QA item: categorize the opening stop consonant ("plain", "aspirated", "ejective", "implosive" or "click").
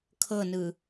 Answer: aspirated